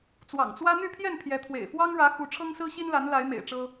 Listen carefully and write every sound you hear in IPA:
t͡s w ɑ̰˨˩ ŋ t͡s w ä˦ n̪ y˥˨ pʰ j ɛ˥˨ n pʰ j ɛ˨˦ t̪ʰ w ḛ˨˩ ɪ̯ f w ɑ˦ ŋ ɻ ä˨˦ x u˨˦ ʈ͡ʂʰ ɤ˦ ŋ s ɹ̩˦ ɕ i˦ n l a˨˦ n l a˨˦ ɪ̯ m ḛ˨˩ ɪ̯ ʈ͡ʂ ɤ˦

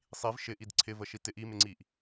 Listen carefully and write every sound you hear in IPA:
sˤ i v ʃ ɪ ʔ i d ǀʰ ɪ v ə ʃ i t ɪ ʔ i m ɪ ŋ͡ǀ i ʔ

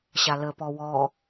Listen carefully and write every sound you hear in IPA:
ɕ a l ə p ɔ w ɔ

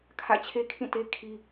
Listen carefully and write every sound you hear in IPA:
kʰ ä̰˦˨ t͡ɕʰ e˦ kʰ ĩ˦˨ t e˦ kʰ i˦

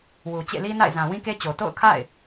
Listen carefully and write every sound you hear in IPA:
w u˨ t͡ɕ ḛ˦˨ l i˦ n a̰˦˨ ɪ̯ z ã˨ w ĩ˦ k e˦ t͡ɕ o˨ t o̰˦˨ ʊ̯ kʰ a̰˦˨ ɪ̯

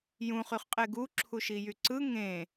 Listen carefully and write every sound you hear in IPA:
j ũ χ y χ qʼ e ɡ u ǁʰ u ʃ i j y ǀ ɯ ŋ ẽ

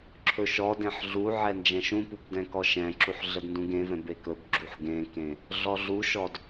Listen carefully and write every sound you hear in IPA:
ǁʰ ɵ ʃ ɔ d ẽ ħ ɮ u ʕ ɛ n d͡ʒ ɛ̃ ʃ ũ p u b d ɛ̃ k ɔ ʃ ɛ̃ ǁ u ħ ɮ ə d n d ũ ɡ ẽ v ɛ̃ b e k ɵ b ɡ͡ǁ u ħ ɡ ẽ k ẽ | ɮ ɔ ɮ u ʃ ɔ d

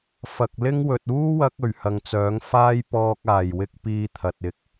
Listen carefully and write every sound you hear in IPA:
f ɐ˨ k̚ l ɪ˥ ŋ w ɵ˨ t̚ uː˥ w ɐ˧ k̚ ɵ˨˩ ɥ h ɐ˨ ŋ t͡s œː˨˥ ŋ f aː˥ j p ɔː˧ k̚ aː˨˩ j w ɪ˥ k̚ p iː˥ t̪ʰ ɐ˨ t̚ ɪ˧ k̚

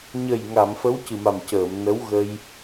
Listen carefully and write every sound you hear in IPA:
ɲ ə˨˩ j ŋ a˨˩˨ m f ə˧˥ w c ɨ˨˩ m a˨˩ m c əː˨˩˨ m n ə˧˥ w ɣ ə˧ j

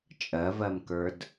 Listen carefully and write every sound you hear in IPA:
t͡ʃʼ ɜ v ɜ m k ə˞ d

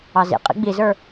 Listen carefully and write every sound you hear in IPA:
ɑ z ḭ qʼ ḭ ɡ͡b i z ə˞

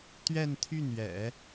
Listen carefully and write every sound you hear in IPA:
t̪ ɥ ɛ˥˧ n t̪ʰ y˥˩ n ɥ ɛ̰˨˩˦

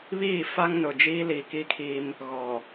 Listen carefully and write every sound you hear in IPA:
β iː˦˨ f a˦ ŋ n ʊ˨ d͡ʒ iː˦ l iː˨ k i˦ kʰ i˦ m | ɣ ɔ˨

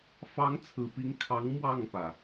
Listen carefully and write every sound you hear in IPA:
f ɑ˨˦ ŋ t͡sʰ ɹ̩˨˩ p i˨˦ ŋ kʰ ɑ˨˦ ŋ m w ɑ˥˨ ŋ p ä˩

